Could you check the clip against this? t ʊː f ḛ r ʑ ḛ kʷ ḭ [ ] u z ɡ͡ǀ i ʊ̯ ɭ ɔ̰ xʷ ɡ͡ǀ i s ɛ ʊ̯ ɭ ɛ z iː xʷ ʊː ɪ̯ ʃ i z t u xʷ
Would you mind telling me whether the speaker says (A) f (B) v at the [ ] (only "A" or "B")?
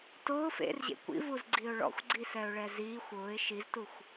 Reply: B